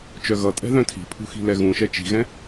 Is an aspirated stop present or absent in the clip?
present